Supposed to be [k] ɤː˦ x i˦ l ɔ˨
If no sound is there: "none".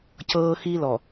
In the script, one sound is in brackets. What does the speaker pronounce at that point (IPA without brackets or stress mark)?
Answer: c